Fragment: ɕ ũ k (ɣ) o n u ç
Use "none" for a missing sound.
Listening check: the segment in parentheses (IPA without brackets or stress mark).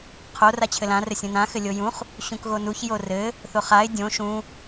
ɣ